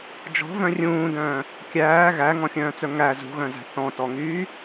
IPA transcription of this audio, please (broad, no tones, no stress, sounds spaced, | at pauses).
d͡ʒ ɔ̤ v œ̃ rʲ ũː d œ̃ː | kʲ æː ɣ æ ŋ ɔ̃ xʲ œ̃ː t͡s œ ŋ æ z ṳ ɣ œ̃ z æ̤ θ ɔ̃ t ɔ ŋ yː